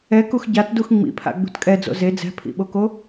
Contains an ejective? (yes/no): yes